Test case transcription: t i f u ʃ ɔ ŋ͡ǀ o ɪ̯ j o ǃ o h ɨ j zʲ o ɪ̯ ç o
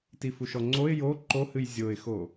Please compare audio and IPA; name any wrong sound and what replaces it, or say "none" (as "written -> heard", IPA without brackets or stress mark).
ç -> x